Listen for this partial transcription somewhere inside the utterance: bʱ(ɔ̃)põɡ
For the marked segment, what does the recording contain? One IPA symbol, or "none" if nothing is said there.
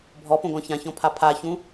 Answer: ɔ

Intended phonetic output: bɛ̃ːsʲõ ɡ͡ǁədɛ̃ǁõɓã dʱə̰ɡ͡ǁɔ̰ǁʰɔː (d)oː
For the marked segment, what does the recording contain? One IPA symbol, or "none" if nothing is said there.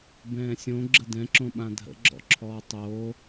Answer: tˤ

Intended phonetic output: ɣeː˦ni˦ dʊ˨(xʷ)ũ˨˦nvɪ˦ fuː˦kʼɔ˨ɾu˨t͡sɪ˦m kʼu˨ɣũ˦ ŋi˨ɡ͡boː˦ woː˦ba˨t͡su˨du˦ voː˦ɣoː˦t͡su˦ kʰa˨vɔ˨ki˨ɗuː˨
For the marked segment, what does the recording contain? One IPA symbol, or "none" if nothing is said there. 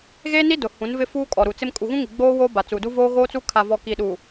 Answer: h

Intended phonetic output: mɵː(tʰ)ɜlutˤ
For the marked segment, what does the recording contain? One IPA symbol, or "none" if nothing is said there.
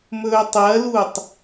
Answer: tˤ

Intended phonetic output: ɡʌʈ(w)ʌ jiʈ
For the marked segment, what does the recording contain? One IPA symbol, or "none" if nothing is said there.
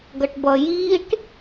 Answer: b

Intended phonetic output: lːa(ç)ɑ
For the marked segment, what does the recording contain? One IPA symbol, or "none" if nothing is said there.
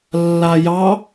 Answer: j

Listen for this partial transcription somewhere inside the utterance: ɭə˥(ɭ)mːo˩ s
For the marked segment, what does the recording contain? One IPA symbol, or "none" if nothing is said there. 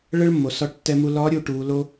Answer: ɭ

